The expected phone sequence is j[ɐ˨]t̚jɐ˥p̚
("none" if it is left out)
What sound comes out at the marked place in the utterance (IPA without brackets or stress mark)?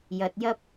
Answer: ɐ˨